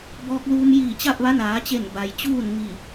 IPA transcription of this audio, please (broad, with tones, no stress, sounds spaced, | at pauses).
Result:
b ɔː˧ k̚ l uː˧ m j iː˧˩ t͡ɕ a˥˨ p̚ ʋ a˧˥ n aː˩˧ t͡ɕ e˧˩ n b a˩ j t͡ɕ uː˥˨ n ŋ i˧˩